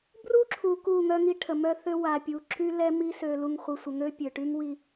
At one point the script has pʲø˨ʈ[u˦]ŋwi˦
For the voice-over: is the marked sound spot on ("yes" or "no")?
no